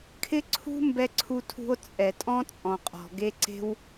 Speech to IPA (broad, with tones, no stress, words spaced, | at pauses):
kʰɪ˦ ǀʰṳ˦ mbɛ˧ǀʰu˧tʰṳ˧o̯ t͡sʼɛ˨tʼɔ̃˦ t͡sʼɔ̃˨qʼɔ̤˨ɡe˦ǀe̤˦w